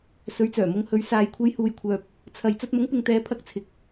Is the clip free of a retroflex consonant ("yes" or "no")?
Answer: yes